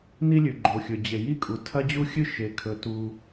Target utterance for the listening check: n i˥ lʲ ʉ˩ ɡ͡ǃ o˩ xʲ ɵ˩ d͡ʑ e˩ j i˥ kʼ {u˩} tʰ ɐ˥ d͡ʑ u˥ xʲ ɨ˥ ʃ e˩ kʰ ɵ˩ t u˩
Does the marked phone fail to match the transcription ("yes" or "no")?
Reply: no